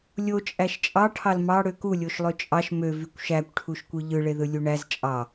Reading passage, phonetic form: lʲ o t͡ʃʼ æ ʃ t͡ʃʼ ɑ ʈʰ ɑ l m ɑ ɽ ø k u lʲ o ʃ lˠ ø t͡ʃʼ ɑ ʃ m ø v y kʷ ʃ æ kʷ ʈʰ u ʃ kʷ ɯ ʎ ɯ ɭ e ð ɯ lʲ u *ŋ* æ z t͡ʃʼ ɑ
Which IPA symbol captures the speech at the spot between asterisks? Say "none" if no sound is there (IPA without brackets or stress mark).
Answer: ɳ